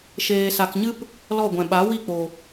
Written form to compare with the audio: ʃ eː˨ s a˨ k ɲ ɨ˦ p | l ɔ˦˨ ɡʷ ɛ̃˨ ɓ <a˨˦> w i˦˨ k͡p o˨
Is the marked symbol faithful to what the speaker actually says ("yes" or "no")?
yes